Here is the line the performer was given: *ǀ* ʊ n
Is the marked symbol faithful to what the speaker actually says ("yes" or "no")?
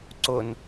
yes